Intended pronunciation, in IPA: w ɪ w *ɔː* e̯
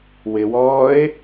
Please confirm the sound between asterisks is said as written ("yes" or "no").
yes